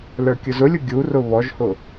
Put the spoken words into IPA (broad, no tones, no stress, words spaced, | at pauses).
lə˞kʲʊzʊlʲʊ ɡʲurʊ βɔʒhʊ